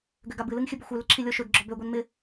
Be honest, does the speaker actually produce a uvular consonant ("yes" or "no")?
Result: no